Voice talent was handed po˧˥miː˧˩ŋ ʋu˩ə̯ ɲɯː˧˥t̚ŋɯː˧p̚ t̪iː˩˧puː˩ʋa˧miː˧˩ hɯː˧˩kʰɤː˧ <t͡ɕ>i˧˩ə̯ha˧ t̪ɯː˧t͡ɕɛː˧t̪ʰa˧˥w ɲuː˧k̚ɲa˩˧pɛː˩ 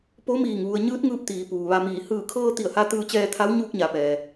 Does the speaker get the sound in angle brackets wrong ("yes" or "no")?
yes